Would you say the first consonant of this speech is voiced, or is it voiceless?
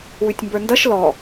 voiced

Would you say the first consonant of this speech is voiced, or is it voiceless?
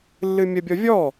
voiced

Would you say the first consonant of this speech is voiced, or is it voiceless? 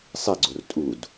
voiceless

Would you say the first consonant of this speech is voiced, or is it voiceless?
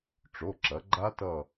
voiceless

